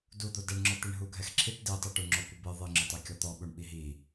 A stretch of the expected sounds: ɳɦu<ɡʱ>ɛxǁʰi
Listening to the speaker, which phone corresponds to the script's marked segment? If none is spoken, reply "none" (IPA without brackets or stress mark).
ɡʱ